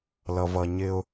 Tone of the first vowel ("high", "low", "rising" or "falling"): low